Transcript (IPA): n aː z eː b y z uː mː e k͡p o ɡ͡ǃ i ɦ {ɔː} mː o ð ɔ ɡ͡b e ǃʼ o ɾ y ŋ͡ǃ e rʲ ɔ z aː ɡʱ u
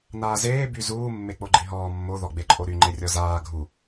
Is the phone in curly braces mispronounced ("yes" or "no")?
no